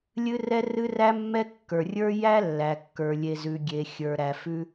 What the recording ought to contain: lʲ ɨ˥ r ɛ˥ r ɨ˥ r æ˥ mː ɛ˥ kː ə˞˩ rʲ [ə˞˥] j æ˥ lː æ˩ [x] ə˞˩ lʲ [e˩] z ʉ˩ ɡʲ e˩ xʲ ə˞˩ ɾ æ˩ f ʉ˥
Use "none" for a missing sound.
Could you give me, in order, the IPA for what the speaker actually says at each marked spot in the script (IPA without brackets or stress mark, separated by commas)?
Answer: ə˞˥, kː, e˩